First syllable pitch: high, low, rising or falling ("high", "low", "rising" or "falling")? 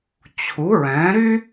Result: rising